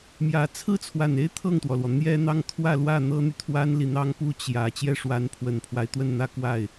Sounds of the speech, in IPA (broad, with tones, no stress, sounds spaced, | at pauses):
m j ä˧˥ t͡sʰ ɹ̩˥ t͡sʰ w a˨˩ n e˥˧ ɪ̯ t̪ʰ ɤ˥˩ ŋ t̪ w ɔ˩ l w ɔ˩ n̪ j ɛ˥ n̪ ɑ˥˧ ŋ t̪ʰ w ä˥˧ l w ä˥˩ n̪ ɤ˥ n̪ y˨ t̪ʰ w a˥ n l i˨ n̪ ɑ˥ ŋ p u˥ t͡ɕ j ä˨˩ t͡ɕ j ɛ˥˩ ʂ w a˧˥ n pʰ w ə˨˩ n pʰ w a˦ ɪ̯ t̪ w ə˥˧ n n̪ ä˥˧ k w a˥˩ ɪ̯